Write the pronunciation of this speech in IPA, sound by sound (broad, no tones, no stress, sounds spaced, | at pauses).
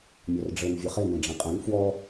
mʲ ɔ r ɖ͡ʐ ɘ n vʲ ə χ e n ẽ ɖ͡ʐ ẽ qʼ ɛ̃ n f w ɔ